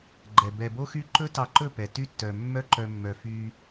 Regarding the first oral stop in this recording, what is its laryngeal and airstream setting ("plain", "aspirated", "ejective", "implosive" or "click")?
click